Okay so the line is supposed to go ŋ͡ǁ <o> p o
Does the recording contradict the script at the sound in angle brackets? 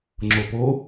no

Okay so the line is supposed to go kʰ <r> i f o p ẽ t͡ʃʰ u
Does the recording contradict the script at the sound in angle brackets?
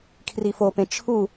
no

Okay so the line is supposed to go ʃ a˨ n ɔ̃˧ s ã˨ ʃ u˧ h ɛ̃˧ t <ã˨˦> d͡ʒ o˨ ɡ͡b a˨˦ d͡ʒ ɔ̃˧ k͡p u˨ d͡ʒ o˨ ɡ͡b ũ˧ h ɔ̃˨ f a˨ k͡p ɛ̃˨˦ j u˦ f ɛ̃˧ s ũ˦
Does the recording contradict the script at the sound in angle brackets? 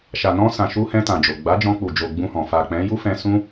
yes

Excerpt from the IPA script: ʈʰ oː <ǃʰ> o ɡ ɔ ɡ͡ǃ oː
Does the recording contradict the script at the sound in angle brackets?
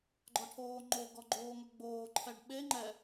yes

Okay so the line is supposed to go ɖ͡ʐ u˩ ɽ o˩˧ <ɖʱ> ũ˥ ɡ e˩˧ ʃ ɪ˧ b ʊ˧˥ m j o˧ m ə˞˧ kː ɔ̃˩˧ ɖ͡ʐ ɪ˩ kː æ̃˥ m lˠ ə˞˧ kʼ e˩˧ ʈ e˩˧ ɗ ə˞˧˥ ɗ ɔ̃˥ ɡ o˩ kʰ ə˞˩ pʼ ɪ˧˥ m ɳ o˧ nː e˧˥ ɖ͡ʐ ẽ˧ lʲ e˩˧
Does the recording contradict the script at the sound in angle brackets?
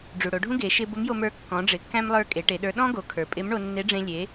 no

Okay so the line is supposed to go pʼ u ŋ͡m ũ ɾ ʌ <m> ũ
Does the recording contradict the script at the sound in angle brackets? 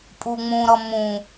no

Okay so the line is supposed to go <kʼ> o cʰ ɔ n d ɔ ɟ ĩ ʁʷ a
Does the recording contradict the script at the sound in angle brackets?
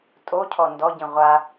yes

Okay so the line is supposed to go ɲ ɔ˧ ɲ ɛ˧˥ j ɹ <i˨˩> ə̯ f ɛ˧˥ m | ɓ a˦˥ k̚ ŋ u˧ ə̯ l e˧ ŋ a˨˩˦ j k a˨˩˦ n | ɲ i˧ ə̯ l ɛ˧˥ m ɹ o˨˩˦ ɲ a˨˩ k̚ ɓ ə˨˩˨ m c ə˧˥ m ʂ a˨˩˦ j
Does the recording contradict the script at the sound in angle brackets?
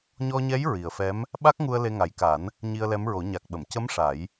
no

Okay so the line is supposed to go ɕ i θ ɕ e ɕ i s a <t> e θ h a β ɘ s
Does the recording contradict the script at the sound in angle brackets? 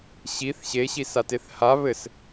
no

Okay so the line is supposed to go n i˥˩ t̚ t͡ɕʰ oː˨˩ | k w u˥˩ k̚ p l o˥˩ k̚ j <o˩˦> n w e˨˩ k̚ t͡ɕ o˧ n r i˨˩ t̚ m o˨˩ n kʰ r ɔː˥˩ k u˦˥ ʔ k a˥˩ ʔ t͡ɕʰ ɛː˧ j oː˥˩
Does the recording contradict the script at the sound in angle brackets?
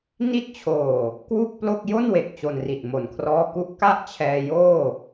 yes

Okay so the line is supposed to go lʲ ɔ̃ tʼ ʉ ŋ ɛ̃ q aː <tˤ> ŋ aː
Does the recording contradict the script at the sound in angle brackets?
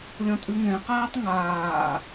no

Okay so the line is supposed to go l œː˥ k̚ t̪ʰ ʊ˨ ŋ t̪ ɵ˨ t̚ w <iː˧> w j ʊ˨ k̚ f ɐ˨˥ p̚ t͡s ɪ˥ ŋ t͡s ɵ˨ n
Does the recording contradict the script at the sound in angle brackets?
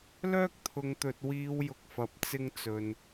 no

